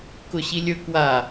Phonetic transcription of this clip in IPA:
kʊɕilʲɵ kwa

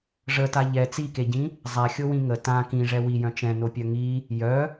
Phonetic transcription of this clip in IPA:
ʐəta ʎɛ t͡sikeɟĩ | zˤaxʲowĩ ŋə tã kĩʐɛ wijœ̃ t͡ʃɛ̃nopʲœ ŋi | jœ

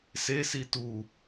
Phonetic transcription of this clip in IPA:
sesi tu

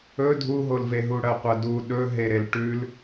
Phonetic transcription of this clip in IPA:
ɵ dʱuɦolveɦu ɽɐqʷɐdu ɗɵɦeɾel ʈʉl

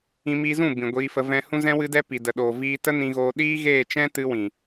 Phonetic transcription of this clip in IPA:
ĩ˧miː˧zũ˦˨ bĩ˨ɡʷiː˧fə˧ vɛ̃˧ hũ˧zɛ̃˧wɨ˧dɛ˧ pi˨də˨ɗoː˨ viː˧ tə˦nĩ˧ɣoː˧ ɗiː˦ɣeː˦˨t͡ʃɛ̃˦ tɨ˧wĩ˨

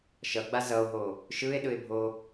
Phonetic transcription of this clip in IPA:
ʃʌɡ͡ba zʌo̯ɦo | ʃɯe̯ɗɯe̯bʱo

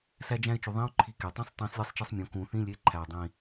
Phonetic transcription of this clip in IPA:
sæ˥d͡ʒæ̃˥ɪ̯t͡ʃu˨˩˦ ðˤĩ˧˥˧ʊ̯ ǃʰi˦˨ke˨˩˦ tˤẽ˧˥˧sˤtˤĩ˨˩˦s lʲe˥sˤt͡ʃe˥sˤmʲõ˨˦ kũ˨˩˦θĩ˧˥˧ lʲe˧˥˧ǃʰæ˨˩ʊ̯ dˤĩ˨˩

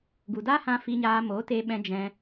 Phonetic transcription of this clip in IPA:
ɡu˨daː˦hã˧ fi˧ɲaː˧ mo˨˦teː˧ɓɛ̃˧ d͡ʒɛ̃˧

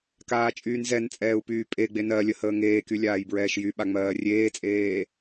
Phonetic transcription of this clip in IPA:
kaːt͡ʃʼyːnzɛnt͡sʼɛːu̯ pyːpʼeɡ͡be nɜ lʲəhəːŋeːky lʲaːjbɹɛːʃjyɓa ŋ͡mɜːrʲeːt͡sʼeː

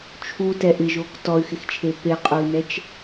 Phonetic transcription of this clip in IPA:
t͡ʃʰutɛ ʔɪʒok tɔy̯xɪxt͡ʃʰe peqʼui̯nɛt͡ʃ

